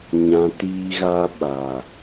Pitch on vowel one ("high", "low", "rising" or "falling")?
low